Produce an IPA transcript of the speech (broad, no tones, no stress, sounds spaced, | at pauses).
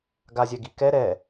ɡ a zʲ ɛ ɡ i k ɛ ɾ ɛ